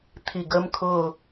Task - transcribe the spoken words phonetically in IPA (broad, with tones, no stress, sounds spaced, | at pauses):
t̪ʰ i˧˩ ɡ əː˦˥ m kʰ ʊː˥˧